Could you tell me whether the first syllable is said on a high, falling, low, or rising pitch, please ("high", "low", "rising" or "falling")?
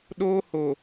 high